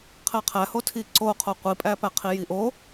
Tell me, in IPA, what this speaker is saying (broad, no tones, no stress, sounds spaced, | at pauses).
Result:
qʰ æ qʰ æ h o tʰ i ǀ o qʰ o qʷ i pʼ æ p æ qʰ i j i ʔ o